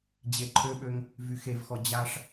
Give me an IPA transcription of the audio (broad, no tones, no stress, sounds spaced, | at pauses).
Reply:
d͡ʑ e ǃʰ ø ɓ ø ŋ | v y x e v x ɔ d͡ʑ a ʂ